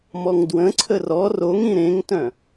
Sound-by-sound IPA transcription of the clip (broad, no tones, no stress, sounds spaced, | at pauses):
m ɔ ŋ d w ə̃ ǀʰ ə r ɔ r o ŋ ĩ ɾ ẽ ŋ t œ̃